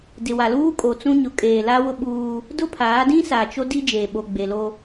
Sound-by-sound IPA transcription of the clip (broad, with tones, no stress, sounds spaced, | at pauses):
d ɪ˨ w a˨ l uː˦ kʼ o˨ t͡s ũ˦ ɲ ʊ˨˦ kʼ eː˨ l a˦ w ʊ˦ ɓ uː˦ | d ʊ˦ pʰ aː˨˦ d ĩ˦ s a˨ t͡ʃ o˦ d i˦ d͡ʒ eː˨ ɓ o˨ ɡ͡b e˨ l o˦